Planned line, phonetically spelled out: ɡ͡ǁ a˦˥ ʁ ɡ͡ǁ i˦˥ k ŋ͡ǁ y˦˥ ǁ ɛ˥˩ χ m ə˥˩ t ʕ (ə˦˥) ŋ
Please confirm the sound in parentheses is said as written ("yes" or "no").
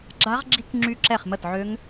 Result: no